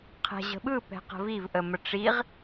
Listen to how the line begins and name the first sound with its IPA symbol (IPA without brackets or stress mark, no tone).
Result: qʰ